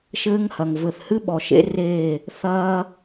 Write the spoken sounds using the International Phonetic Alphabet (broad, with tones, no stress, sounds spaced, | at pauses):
ʃ ɘː˦ ŋ h ɐ˨ ŋ v ɘ˨ θ h ɨ˦ ɓ ɔ˨ ʃ ḛ˦ r eː˦˨ | θ ɐː˦